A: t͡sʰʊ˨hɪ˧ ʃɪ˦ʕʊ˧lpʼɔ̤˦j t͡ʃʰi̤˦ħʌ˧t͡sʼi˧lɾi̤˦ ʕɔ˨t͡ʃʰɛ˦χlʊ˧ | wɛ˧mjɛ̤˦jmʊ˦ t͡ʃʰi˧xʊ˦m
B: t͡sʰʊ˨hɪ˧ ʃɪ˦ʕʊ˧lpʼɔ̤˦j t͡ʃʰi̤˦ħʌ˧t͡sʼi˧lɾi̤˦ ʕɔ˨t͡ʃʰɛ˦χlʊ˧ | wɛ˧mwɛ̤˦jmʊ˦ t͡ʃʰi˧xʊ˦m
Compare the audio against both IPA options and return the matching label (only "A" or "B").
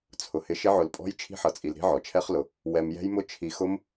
A